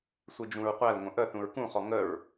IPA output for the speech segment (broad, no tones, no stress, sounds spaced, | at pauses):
sʷ i d͡ʒ ũ ɹ qʷ æ l ŋʷ ə̃ ʔ ə θ ũ ɹ k ũ χ ɔ ŋ ə ɹ